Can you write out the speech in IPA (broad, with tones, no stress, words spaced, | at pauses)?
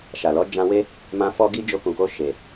ʃa˨lɔ˨˦ d͡ʒã˧we˦ | mã˧ fɔ˧ɡi˧ d͡ʒo˧kũ˨ko˧ ʃe˨